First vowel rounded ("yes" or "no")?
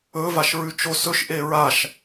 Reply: yes